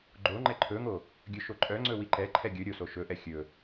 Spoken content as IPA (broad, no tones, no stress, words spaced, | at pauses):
ɡ͡ǃoŋ͡ǃɛ ǃʰɵŋo | ɡʲɵʃoǃʼœŋ͡ǀɵ wiǃɛǃʰɛ ɡʲɵ ɾʲoso ʃɵʔɛ xʲɵ